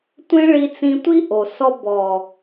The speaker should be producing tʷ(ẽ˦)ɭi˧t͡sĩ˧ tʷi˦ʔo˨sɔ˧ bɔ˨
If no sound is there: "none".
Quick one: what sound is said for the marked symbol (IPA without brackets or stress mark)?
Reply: ẽ˦